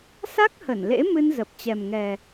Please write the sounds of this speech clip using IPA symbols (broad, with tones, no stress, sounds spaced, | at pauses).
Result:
s a˦˥ k̚ h ə˧˩ n l ḛ˧˥ m ɨ˧ n z ə˨˩ p̚ t͡ɕ ɛ˨˩ m ŋ ɛ˨˩